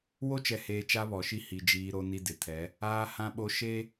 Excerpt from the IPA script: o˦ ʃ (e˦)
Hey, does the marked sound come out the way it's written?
yes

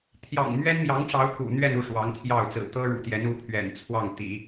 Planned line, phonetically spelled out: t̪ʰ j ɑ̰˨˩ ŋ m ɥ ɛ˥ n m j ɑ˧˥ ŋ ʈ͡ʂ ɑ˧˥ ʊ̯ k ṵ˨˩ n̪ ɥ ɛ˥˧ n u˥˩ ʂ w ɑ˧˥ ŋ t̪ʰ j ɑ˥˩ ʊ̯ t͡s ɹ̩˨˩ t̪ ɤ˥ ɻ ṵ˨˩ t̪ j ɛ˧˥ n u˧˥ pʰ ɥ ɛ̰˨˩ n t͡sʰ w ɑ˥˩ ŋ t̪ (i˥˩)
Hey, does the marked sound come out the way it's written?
no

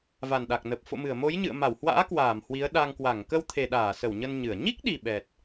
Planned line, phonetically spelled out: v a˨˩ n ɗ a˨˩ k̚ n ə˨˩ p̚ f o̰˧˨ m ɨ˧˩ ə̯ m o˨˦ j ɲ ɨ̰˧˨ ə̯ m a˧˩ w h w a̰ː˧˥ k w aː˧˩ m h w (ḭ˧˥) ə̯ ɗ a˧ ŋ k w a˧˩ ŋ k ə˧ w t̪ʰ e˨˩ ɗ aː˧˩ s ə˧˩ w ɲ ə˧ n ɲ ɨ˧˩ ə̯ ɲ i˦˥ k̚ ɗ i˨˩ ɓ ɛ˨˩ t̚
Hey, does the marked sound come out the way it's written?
no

